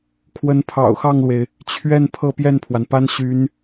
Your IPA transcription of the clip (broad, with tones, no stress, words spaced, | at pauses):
kʰwə˧˥npʰɑ̰˨˩ʊ̯xɑ˥˩ŋlwe˩ɪ̯ | t͡ɕʰɥɛ˥˧n pʰɤ˥˧pjɛ˥˩npʰwa˩npa˥n ɕy˧˥n